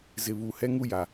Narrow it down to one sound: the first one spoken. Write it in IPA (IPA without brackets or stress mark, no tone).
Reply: z